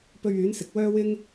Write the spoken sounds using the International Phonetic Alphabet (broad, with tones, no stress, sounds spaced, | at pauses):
p ɵ˧ ɥ yː˨˥ n s ɪ˨ k̚ w œː˥ w ɪ˥ ŋ